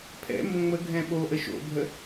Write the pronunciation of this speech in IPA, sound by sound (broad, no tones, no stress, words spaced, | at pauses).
pʰɛ̰ mbõŋ͡məɡʱɛ̃ ɓoʔə ʃo̰bʱə